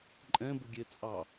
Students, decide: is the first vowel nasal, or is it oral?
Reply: nasal